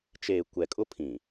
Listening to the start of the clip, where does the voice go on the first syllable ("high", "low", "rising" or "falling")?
low